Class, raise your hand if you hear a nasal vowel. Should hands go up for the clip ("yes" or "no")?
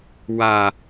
no